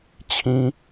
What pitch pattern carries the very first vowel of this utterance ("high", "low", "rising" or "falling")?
high